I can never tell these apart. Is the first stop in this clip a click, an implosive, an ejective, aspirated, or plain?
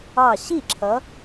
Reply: click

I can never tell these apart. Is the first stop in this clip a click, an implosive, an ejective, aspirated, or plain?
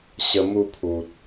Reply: aspirated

